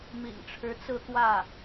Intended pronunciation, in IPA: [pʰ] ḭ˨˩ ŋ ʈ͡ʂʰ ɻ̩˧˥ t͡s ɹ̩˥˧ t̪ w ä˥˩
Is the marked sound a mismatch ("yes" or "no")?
yes